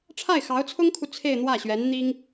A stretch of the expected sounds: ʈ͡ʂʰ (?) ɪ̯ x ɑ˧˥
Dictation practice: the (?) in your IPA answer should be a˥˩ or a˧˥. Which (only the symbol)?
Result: a˥˩